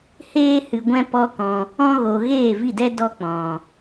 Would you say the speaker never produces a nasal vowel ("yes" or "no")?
no